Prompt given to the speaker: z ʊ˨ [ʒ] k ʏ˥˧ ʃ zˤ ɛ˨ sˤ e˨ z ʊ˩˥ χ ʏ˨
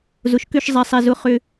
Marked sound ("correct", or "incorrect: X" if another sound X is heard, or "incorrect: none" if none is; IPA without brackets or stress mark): incorrect: ʃ